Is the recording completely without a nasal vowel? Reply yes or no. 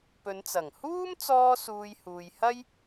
yes